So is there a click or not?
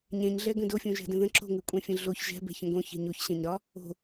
yes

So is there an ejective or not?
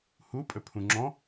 yes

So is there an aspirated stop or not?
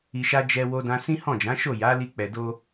no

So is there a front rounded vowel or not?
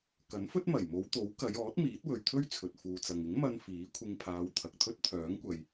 yes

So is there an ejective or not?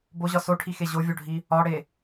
no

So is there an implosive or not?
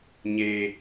no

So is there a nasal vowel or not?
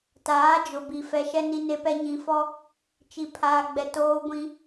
yes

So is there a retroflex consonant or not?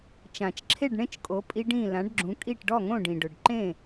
yes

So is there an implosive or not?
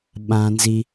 yes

